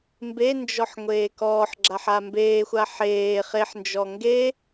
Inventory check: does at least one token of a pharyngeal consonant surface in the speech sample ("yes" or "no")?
yes